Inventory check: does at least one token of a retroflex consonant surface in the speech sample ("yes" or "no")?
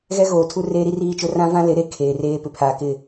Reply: no